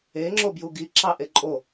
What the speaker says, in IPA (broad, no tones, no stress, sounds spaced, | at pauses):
e ŋ͡ǁ o b j u ɡ i ǁ ɑ ʔ e ǃʼ o